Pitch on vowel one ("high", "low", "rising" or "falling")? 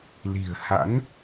low